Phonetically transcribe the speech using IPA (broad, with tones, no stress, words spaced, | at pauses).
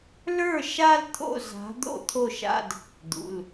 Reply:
lə˞˥˩ ʃa˥˧lt̪ʰo̰˥˩ za̤˨˥ d̪o̰˥˧t̪ʰo˥˩ʃa̰˥˧d | d̪ṵ˩˧˩l